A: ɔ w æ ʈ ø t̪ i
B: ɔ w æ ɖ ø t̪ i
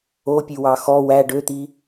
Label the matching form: B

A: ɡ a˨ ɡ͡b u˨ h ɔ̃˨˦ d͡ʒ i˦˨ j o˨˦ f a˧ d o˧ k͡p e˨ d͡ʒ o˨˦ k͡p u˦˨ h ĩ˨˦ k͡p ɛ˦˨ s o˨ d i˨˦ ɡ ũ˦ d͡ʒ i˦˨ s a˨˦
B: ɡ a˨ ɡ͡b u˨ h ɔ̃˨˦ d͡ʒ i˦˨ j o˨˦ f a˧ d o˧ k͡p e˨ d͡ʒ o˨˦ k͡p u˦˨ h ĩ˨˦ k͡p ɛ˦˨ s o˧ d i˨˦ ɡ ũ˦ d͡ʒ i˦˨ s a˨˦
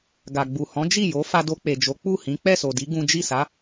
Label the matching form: A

